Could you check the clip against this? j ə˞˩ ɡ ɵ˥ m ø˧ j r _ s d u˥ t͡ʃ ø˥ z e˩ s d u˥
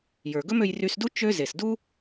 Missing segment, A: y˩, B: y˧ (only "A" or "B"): B